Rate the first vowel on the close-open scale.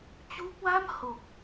close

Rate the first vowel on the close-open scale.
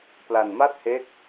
open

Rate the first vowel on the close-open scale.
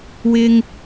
close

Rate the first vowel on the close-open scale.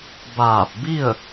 open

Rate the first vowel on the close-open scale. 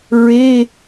mid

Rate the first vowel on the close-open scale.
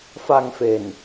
open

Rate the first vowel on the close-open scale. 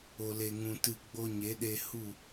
mid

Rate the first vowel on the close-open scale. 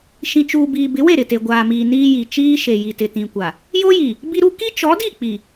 close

